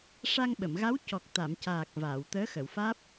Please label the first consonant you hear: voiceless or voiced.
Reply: voiceless